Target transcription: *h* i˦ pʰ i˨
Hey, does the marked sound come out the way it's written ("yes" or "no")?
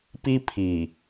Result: no